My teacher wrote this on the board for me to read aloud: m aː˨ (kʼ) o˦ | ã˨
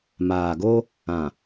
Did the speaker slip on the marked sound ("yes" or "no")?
yes